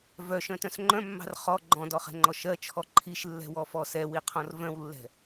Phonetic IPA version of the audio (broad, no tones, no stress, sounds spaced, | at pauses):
v œ ʃ œ̃ t œ̃ s ŋ͡ǃ œ̃ mː ɑ̤ r χ ɔ ɡ͡ǃ ɔ̃ d ɔ χ ɛ̤ ŋ͡ǃ ɔ ʃ ɜ t͡ʃʰ ɔ ǃʰ i ʃ lː ɛ̤ w ɔ f ɔ s ɛ w i qʰ ɔ̃ r v œ̃ w lː ɛ̤